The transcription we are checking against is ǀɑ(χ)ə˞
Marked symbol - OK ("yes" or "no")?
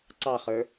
yes